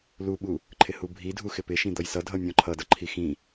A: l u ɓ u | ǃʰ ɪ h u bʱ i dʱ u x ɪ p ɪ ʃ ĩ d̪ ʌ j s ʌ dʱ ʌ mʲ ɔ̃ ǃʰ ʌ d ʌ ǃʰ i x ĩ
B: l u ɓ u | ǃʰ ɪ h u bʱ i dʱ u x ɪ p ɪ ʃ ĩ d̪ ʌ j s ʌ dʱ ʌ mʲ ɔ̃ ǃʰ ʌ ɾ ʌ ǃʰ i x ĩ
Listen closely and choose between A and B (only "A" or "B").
A